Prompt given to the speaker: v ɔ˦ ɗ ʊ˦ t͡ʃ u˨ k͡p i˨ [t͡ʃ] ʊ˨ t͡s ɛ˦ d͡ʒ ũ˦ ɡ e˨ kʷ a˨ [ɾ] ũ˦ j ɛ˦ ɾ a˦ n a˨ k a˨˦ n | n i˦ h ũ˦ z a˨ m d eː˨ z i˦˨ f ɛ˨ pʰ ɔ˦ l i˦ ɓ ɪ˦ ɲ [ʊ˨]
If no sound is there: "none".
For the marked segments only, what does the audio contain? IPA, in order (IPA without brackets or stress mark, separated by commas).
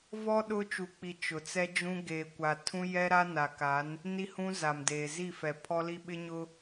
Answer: t͡ʃ, tʰ, ʊ˦